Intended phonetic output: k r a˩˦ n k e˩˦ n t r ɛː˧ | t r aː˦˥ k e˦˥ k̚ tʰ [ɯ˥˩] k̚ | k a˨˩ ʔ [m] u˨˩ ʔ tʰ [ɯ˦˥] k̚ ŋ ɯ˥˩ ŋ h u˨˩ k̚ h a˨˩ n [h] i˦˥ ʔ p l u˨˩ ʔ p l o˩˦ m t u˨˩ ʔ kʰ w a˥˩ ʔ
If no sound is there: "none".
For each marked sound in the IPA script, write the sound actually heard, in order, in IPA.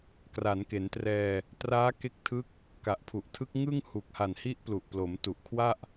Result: ɯ˦˥, pʰ, ɯ˦˥, h

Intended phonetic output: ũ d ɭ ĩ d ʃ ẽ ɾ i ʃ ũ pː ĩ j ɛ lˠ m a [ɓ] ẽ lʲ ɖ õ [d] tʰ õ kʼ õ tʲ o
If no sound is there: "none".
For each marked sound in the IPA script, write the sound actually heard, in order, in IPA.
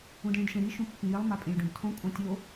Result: pʼ, d

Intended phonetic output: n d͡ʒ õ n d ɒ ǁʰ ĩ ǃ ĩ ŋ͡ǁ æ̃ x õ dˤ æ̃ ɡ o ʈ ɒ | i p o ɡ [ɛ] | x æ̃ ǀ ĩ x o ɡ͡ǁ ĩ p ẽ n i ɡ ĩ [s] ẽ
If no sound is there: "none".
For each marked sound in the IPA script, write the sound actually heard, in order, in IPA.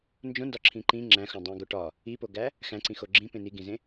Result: æ, z

